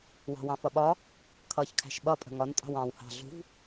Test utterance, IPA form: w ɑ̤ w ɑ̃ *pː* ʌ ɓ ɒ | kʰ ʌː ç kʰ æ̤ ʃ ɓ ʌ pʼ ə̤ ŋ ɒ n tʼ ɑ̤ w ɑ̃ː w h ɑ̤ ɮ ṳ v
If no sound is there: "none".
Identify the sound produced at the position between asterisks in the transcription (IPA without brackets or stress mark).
f